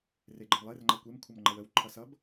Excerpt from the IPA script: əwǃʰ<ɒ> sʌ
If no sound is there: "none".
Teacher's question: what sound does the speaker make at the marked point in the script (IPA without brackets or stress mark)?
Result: ʌ